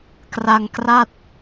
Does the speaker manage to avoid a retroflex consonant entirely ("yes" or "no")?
yes